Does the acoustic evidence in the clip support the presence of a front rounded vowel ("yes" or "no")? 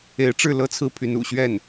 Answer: yes